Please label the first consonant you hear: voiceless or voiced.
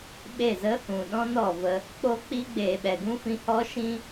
voiced